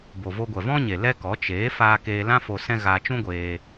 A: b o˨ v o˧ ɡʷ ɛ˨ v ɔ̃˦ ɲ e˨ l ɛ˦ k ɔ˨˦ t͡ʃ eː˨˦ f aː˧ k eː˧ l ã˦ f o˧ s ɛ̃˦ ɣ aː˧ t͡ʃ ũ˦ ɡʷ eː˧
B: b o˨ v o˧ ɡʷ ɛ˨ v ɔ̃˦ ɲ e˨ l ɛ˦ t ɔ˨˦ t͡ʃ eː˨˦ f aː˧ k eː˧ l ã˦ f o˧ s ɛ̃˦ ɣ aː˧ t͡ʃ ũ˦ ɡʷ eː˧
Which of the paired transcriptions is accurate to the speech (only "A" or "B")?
A